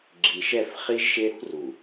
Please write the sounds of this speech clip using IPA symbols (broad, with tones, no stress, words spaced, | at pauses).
ɡ͡ǁi˨ʃɛ˦˨f χi˦ʒʃe˦ɾṳ˦ru˨